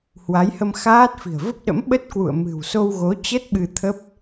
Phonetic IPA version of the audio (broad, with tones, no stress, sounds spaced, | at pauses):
h w a˨˦ j h ə˧ m x aː˦˥ t̚ f i̤˨˩ ə̯ v ə˦˥ p̚ ɗ ə̰˧˥ m ɓ ə˦˥ t̚ k w ṵ˧˨ ə̯ m ɨ̤˨˩ w s o˧ w ɣ o˨˦ t͡ɕ ə˦˥ t̚ ɓ ɨ˧ t̪ʰ ə˦˥ p̚